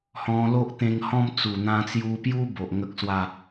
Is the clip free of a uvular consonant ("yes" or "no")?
yes